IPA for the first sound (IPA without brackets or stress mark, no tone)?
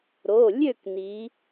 ɾ